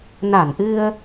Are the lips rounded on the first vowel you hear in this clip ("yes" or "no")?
no